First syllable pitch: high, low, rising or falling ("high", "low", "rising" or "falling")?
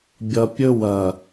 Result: low